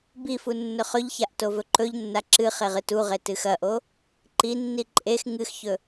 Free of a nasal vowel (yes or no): yes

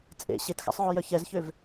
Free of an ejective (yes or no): no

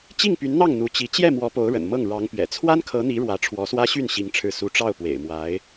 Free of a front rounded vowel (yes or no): no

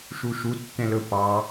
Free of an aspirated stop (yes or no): yes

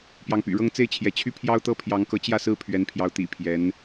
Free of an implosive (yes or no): yes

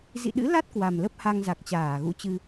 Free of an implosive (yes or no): no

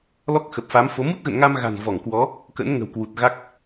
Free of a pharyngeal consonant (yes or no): yes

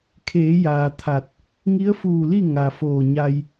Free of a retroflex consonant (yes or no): yes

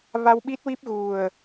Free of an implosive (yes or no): no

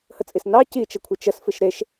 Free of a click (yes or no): yes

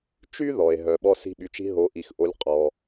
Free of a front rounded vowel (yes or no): no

